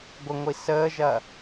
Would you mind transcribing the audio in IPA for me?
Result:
ɡʷəŋʷi səːʒɐ

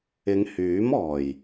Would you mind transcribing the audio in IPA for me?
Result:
ɪ˨˧ŋhyː˨˥mɔː˨˩j

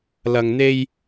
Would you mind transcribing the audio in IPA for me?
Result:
lɐ˨ŋn̪e˧j

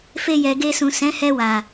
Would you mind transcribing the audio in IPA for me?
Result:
fe˧jɛ˨ɡe˧sũ˨ sɛ̃˨˦hɛ˧wa˨

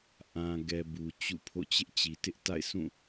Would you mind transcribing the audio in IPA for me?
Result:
ʔã˨ɡɛ˨ bu˨t͡ɕṵ˦˨pʰo̰˦˨ t͡ɕɪ˦ʔt͡ɕi˨tɪ˦ʔ ta̰˦˨ɪ̯sʰũ˦˨

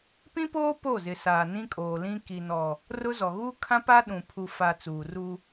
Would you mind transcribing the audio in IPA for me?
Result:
pĩ˦poː˦ po˦˨zɪ˨saː˨ nĩ˦kʼoː˨lĩ˦ ki˨nɔ˨ | rʊ˦zɔ˨ ɣuː˦kʰã˦pa˦ ɗũ˨ pʰu˨fa˨ t͡suː˨ru˦

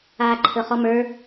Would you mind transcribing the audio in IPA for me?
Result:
aːǃʰɵχɔmə˞

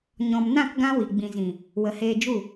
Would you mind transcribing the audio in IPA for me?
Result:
ɲɔ̃˨mnã˦˨k ɡã˦wi˨ ɡ͡bĩ˨zĩ˨ | wə˨heː˧d͡ʒu˦˨

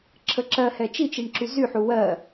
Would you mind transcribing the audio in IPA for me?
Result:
ǁʰəǁɜhɛ t͡ʃit͡ʃiɳ ǁyzyħu wɜ

